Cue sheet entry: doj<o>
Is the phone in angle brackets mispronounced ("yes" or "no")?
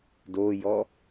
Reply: yes